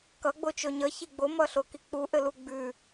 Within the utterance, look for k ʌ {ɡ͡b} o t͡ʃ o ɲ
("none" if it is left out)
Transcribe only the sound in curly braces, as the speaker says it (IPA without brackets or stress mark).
ɡ͡b